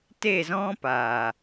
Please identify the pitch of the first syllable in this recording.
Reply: falling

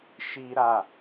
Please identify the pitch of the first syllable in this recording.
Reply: high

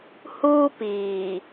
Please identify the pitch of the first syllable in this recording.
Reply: high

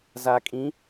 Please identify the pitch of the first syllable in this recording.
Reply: low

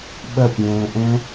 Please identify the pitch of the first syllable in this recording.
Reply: falling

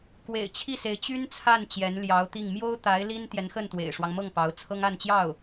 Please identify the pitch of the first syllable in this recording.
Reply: low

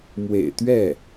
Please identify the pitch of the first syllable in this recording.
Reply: low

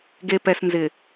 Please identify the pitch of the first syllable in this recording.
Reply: low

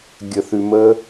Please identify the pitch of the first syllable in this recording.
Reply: low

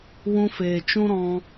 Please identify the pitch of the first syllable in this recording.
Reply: high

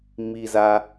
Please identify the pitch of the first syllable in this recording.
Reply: low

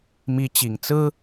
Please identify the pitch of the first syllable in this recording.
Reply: rising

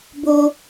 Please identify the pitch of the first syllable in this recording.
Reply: high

